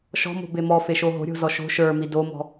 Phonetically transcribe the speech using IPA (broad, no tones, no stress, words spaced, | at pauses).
ʃɔ̤mo̤be mɔfeʃo ɦo̤ɾʲo̤zɔ ʃo̤ ʃə˞mi domɔ̤